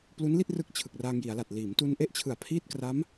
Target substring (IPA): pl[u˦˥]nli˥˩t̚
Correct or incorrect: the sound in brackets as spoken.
correct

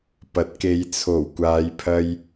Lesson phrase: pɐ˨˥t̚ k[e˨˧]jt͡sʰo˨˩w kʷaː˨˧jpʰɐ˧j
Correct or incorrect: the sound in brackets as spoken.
correct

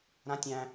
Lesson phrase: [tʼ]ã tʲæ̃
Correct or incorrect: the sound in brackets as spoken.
incorrect: ɾ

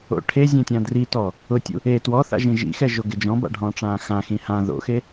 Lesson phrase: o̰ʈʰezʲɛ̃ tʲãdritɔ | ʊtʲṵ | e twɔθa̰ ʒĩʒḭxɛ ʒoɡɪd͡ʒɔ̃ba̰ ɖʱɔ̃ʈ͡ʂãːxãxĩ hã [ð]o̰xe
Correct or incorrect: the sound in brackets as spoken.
correct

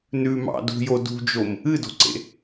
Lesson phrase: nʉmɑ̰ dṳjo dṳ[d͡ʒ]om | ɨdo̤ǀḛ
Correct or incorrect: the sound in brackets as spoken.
correct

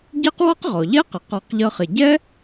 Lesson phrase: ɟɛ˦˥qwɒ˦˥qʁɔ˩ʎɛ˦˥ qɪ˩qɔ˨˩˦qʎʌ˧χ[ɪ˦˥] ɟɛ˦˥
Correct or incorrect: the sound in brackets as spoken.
incorrect: ɪ˩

